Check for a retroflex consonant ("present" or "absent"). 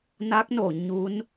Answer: absent